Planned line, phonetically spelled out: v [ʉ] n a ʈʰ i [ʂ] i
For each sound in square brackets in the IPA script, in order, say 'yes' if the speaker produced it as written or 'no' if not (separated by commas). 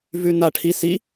yes, no